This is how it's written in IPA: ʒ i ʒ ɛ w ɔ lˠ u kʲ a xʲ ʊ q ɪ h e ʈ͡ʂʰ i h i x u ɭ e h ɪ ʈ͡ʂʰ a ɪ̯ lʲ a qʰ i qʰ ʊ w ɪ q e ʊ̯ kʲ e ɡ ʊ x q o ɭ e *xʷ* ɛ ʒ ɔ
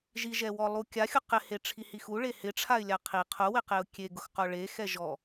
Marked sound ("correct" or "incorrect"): incorrect